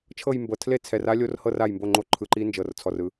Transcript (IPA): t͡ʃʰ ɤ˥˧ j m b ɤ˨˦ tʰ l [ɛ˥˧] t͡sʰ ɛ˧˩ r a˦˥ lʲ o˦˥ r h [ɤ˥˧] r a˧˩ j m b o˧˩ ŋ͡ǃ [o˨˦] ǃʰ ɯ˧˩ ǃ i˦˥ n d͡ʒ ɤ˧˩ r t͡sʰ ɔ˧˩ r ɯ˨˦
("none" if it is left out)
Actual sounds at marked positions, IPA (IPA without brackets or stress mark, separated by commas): e˥˧, ɤ˥˧, o˨˦